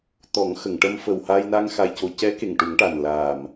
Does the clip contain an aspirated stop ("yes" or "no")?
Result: no